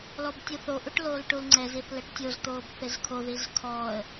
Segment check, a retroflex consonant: present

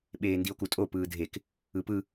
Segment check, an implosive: present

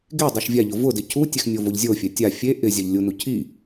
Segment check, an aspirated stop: present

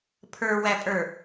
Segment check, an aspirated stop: present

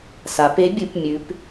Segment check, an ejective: absent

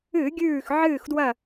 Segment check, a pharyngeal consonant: present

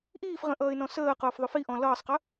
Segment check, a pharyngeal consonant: absent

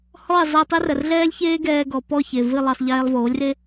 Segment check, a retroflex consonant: absent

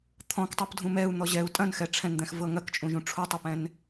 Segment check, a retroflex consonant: present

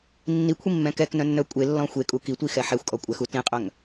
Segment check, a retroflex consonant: absent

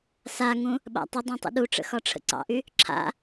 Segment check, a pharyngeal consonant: absent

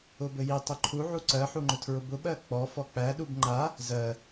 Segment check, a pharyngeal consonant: present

